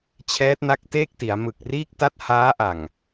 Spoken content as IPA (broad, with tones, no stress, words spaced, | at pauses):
t͡ɕʰɛː˦˥t̚na˦˥k̚teː˥˩k̚ ti˩˦a̯mɯ˨˩k̚riː˥˩k̚ ta˥˩t̚haː˦˥ʔa˨˩ŋ